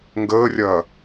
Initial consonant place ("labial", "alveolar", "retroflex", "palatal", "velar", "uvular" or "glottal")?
velar